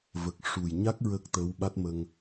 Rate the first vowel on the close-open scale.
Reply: mid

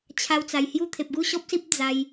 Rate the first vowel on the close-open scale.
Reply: open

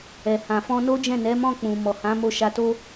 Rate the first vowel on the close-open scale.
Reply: mid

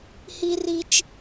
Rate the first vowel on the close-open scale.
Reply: close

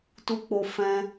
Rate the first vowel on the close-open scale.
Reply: close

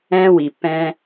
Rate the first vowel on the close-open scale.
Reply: mid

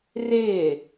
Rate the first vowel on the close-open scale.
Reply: close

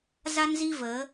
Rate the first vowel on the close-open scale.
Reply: open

